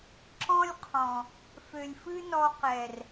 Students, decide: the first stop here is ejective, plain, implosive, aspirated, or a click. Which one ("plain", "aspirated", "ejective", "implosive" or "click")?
click